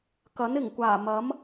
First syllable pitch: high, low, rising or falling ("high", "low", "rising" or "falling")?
rising